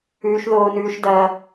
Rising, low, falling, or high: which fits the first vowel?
high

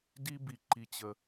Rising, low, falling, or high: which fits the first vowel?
high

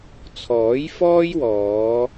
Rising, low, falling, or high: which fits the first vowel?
rising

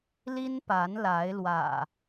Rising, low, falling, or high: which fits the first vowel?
high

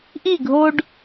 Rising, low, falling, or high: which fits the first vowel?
falling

